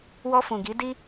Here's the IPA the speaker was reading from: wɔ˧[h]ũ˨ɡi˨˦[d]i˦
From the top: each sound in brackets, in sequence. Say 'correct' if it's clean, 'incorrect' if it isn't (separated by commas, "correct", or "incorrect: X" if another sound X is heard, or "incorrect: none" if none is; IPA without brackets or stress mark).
incorrect: f, correct